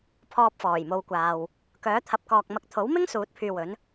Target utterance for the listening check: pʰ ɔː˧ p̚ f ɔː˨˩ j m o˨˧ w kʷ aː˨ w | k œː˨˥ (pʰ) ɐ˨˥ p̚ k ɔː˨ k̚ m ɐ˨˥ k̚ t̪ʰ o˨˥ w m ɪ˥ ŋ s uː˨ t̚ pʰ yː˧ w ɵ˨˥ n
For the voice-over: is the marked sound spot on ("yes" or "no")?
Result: no